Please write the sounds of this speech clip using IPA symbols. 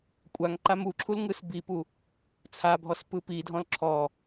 kʷʼ a ŋ ǃ a m u ǁʰ u l ŋ ɯ s b i p u | t͡sʰ a bʱ ɔ s p ɯ p i dʱ ɔ̃ l ǁʰ ɔ

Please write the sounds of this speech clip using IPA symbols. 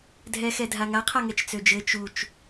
dʱ ɛ x ɛ dʱ a ŋ a qʰ a ŋ ɛ t͡ʃ t͡s ø d͡ʒ ɘ t͡ʃ u t͡ʃ

